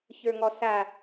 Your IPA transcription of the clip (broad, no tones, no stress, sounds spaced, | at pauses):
ç ə˞ ŋ ɔ s a